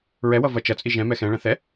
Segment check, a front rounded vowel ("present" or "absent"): absent